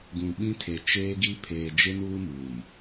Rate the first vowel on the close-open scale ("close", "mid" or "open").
close